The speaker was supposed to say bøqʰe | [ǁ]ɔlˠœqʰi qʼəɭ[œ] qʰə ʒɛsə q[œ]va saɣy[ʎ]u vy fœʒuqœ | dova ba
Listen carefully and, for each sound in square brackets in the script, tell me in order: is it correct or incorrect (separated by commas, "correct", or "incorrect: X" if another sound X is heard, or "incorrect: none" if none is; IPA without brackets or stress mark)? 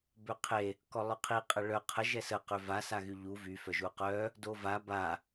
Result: incorrect: k, correct, incorrect: ø, correct